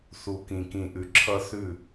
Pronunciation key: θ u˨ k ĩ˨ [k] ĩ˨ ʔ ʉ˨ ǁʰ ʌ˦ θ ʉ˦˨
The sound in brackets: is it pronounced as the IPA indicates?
yes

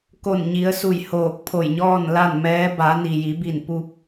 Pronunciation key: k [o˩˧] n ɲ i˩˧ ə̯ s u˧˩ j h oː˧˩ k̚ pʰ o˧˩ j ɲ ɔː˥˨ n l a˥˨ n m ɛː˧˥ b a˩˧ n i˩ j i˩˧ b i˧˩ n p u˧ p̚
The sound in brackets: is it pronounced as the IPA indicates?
no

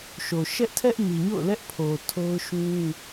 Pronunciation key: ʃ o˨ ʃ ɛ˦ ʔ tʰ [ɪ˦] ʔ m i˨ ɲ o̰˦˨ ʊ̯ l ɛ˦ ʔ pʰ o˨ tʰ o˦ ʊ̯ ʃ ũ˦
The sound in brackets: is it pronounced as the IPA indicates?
no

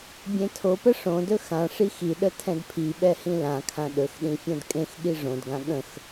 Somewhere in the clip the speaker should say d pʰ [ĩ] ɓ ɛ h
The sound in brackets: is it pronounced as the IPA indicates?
no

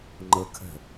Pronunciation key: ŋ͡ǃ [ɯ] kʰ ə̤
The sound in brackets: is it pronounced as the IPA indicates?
no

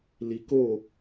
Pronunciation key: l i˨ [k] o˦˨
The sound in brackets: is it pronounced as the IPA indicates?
yes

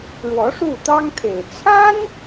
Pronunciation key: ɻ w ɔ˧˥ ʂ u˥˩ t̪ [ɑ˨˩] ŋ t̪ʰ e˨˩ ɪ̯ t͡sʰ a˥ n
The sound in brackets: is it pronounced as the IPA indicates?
no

